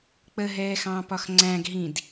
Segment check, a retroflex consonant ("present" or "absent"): absent